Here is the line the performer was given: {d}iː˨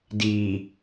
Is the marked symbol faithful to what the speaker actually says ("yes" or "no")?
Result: yes